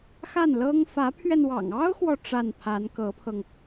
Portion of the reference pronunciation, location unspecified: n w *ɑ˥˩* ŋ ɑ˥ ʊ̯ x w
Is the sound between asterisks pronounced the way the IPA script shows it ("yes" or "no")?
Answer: no